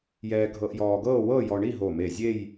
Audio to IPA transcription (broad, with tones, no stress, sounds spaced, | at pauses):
j ɛː˧ ɡʱ ɤ˧ ʔ j ɔː˧ ɡ ɤː˥˧ w ɤ˥˧ j ɔ˧ ɳ i˥˧ ɦ o˧˩ m e˧˩ zʲ e˥˧ j